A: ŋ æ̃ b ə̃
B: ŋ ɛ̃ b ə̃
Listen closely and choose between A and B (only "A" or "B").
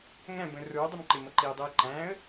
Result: A